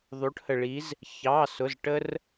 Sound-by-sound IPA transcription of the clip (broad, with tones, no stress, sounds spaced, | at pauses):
ðˤ u˧˥ ʈ h ə˧ ɭ i˧˥ z | ç ɑ˧˥˧ s ʊ˧˥˧ z ʈ ə˥ r